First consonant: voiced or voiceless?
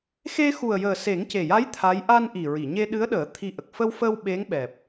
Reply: voiceless